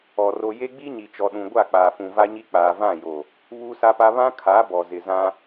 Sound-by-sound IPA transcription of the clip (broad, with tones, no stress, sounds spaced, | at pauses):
ɔ˨ r o˦ j e˦ ɡ͡b i˦ ɲ i˨ t͡ʃ ɔ˨ ɗ ũ˨ ɡʷ a˦˨ k͡p aː˨ f ũ˨ v a˦ ɲ i˦ k͡p aː˨ v ã˦˨ j o˨ | β uː˦ s a˦ p a˦ β ã˦ kʰ a˨˦ b ɔ˨ z ɪ˨ z ã˦